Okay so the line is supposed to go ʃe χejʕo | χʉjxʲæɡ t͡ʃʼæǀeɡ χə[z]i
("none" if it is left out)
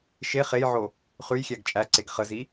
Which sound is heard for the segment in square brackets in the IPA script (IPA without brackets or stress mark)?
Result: z